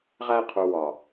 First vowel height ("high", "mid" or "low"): low